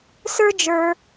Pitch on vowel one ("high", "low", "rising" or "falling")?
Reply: high